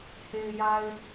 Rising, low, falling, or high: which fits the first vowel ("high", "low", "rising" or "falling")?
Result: low